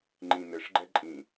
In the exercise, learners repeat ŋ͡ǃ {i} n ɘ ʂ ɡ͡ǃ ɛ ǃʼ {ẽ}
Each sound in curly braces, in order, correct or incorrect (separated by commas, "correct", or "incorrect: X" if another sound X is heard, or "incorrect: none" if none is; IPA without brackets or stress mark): incorrect: ĩ, incorrect: ĩ